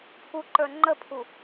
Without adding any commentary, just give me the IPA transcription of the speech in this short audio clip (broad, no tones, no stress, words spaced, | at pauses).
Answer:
pʰuǃə˞ ŋ͡ǃəpʰu